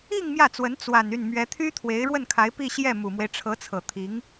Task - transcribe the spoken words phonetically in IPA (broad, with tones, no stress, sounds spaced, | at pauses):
i˥˧ ŋ m j ä˥˩ t͡s w ə˧˥ n t͡s w a˨˩ n y˥˩ n m ɥ ɛ˧˥ t̪ʰ y˥ t̪ʰ w e˧˥ ɪ̯ ɻ w ə˥˩ n kʰ a˧˥ ɪ̯ p i˥˧ ɕ j ɛ˥˩ m u˨˩ m w e˦ ɪ̯ ʈ͡ʂʰ ɤ˧˥ t͡sʰ ɤ˨˩ t̪ʰ i˧˥ ŋ